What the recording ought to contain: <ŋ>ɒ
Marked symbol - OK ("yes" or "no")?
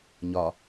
no